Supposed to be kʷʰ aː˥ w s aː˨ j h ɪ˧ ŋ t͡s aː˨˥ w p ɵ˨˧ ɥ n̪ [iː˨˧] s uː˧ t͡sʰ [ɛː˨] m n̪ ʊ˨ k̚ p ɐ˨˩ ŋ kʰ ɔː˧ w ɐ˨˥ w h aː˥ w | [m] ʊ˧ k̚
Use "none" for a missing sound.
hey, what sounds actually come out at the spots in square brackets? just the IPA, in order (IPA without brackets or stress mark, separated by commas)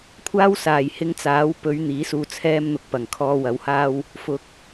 iː˨˥, ɛː˧, f